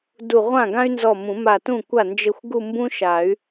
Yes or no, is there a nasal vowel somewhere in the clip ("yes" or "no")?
yes